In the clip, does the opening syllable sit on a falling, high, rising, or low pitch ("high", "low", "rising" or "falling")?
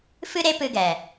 high